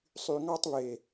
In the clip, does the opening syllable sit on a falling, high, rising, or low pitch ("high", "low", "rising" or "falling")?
low